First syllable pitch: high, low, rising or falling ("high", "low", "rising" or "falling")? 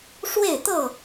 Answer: falling